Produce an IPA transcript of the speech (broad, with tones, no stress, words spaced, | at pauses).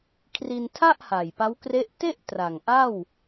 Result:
kʰri˧ntʰa˥˩ʔha˨˩j pa˦˥wkre˦˥ʔ te˥˩ʔ tra˨˩ŋʔa˥˩w